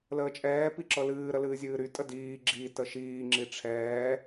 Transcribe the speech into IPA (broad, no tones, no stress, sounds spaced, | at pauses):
l əː t͡ʃʼ ɛː p i ǁ ɤ l ɨː ɾ ə l ɨː zʲ ɨː ɾ y tʼ ə d iː ɡ͡ǁ i t ə ʃ iː ŋ͡ǁ i ʈ͡ʂʰ ɛː